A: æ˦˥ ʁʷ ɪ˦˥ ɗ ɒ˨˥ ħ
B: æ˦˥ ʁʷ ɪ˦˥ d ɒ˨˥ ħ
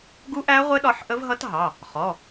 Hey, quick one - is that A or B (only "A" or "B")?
A